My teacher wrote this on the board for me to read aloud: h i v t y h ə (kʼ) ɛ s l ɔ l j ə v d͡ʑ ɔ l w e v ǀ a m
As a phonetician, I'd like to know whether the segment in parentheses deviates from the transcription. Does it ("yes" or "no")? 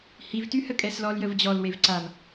no